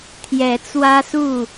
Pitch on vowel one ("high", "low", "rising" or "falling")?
rising